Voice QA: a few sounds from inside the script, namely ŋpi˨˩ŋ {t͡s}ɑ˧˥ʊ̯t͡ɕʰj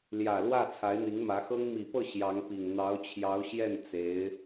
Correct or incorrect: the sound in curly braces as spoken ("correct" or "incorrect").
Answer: incorrect